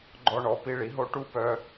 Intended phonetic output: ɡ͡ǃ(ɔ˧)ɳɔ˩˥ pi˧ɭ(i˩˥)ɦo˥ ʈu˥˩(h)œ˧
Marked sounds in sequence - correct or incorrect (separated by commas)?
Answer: correct, correct, incorrect